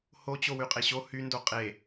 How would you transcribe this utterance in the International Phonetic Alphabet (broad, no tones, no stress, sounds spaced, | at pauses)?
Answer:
h o t͡ɕ o w y qʼ e ɕ o h y n d o qʼ e